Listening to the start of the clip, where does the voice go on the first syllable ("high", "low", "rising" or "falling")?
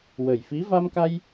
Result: low